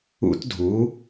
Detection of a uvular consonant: absent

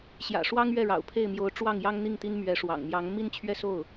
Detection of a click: absent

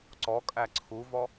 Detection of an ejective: present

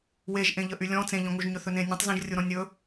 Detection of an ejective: absent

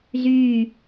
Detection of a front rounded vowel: present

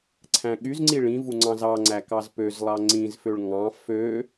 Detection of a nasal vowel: present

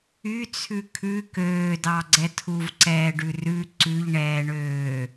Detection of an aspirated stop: present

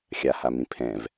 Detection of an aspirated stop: present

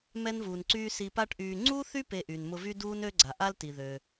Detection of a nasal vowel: absent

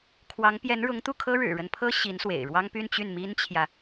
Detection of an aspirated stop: present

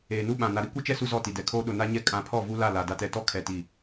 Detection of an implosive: present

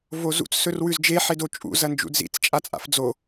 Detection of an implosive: absent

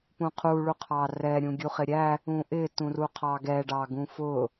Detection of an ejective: absent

